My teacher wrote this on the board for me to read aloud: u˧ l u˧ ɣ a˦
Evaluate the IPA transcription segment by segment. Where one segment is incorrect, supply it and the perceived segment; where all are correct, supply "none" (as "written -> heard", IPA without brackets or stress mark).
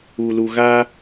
none